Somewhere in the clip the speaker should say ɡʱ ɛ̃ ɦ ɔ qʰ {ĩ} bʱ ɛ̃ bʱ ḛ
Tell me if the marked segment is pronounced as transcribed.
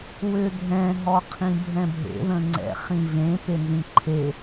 yes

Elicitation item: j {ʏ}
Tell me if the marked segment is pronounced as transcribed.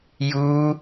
no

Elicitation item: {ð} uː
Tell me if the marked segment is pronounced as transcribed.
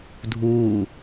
no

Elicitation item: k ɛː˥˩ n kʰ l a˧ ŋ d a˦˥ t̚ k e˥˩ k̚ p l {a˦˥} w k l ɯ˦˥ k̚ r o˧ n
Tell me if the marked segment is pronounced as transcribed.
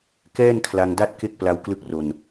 yes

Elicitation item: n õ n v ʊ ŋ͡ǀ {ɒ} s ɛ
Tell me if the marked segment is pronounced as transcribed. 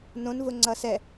no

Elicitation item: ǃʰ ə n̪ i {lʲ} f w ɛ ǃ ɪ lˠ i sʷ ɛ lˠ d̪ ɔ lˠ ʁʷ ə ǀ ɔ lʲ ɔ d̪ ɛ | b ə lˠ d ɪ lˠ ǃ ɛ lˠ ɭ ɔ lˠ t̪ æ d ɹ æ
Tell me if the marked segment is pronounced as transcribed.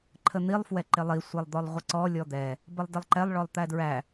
no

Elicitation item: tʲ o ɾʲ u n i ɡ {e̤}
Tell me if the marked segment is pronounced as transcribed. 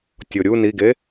no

